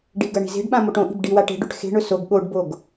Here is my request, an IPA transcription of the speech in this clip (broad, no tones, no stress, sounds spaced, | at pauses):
ɖ i ɡ ɐ ɳ i̤ z e̤ ɖ ɓ ã m o ʈ õ ʔ i̤ b ɖ i w a ʈ e̤ ɖ ʉ ʈ x e̤ ɳ ɵ s o ɡ ɠ o ɖ b o ɡ